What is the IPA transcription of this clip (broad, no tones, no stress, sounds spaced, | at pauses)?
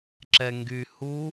ǁ ɛ ŋ ɡ y h u